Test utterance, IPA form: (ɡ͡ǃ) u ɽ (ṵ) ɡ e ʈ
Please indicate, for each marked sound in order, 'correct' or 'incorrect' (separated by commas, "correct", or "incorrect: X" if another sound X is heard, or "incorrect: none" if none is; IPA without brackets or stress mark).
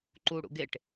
incorrect: ǃ, correct